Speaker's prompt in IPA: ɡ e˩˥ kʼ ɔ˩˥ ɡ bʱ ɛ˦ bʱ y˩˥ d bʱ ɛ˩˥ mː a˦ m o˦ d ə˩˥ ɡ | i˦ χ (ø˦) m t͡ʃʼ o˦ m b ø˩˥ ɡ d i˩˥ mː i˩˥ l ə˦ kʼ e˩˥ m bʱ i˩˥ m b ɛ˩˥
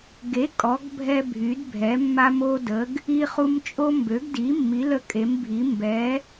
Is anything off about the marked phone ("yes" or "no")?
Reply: yes